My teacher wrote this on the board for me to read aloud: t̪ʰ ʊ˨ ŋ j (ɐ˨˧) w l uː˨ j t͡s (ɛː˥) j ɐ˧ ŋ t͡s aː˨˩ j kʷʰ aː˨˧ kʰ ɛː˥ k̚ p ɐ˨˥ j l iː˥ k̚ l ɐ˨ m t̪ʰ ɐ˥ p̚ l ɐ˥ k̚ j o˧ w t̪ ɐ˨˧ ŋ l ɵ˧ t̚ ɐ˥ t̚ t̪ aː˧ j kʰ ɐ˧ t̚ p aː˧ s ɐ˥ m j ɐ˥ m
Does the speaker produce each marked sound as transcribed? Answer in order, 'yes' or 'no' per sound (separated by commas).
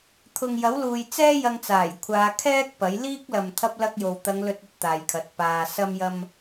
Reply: no, yes